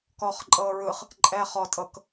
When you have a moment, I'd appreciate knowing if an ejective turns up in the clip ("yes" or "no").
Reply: yes